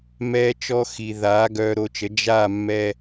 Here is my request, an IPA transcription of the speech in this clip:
m ɛː˧ t͡ʃ ɔ˧ x i˩ ð aː˩˥ ɡ œː˧ ɾ o˧ t͡ʃ ə˩˥ d͡ʒ aː˥˩ mː ɛ˧

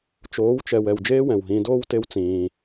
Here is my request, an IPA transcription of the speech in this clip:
t͡ʃ oː˨˦ w t͡ʃ ɛ˨ w ɛ˨ w d͡ʒ eː˦ w ɛ̃˨ w ɦ ĩː˧ d oː˦ w t e˦ w t͡s ĩː˧

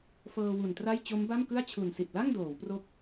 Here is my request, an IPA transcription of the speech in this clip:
f ɤː˧ w u˨˩ n t r a˥˩ j t͡ɕ o˦˥ m b a˥˩ m k ɯ˥˩ a̯ t͡ɕʰ u˨˩ n s i˨˩ t̚ l a˥˩ ŋ d oː˩˦ w p r o˦˥ k̚

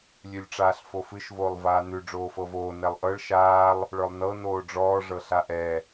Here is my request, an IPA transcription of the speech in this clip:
lʲ ʉ lʲ ʈ͡ʂ aː ɬ f o f ɨ ʃ v oː lˠ v aː n ʉ ɖ͡ʐ oː f ɤ v oː n ɛ lˠ ʔ ɤ ɭ ʃ aː lˠ | ɭ ə˞ lˠ n ɤ n oː ɖ͡ʐ ɔː ʐ ɤ ɬ a ʔ ɛ

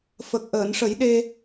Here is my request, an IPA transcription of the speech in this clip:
f ə˨˩ k̚ ʔ əː˨˩˨ n ʂ ə˨˩˦ j ɗ e˧

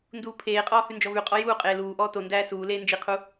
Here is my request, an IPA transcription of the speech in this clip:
n d uː pʰ eː qʼ ɔː h ʉ n d͡ʒ ɔ v ʉ qʼ ɔ j uː qʼ eː l uː ʔ ɔː t o n d æː s uː l eː n d͡ʒ i qʰ u

